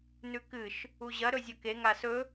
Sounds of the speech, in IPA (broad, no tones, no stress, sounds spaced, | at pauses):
n ʉ k ɨ ʃ | u ʑ ɐ ɾ ɵ zʲ ɵ k e ŋ a s ɵ